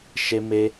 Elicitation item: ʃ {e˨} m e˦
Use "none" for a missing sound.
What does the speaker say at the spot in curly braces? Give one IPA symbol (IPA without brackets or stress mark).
e˦